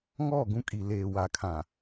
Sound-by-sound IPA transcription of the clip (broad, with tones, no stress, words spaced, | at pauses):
ŋɔ˦˨ɡũ˦kʼi˨ leː˨wa˨kʰã˨